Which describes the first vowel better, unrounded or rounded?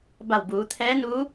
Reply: unrounded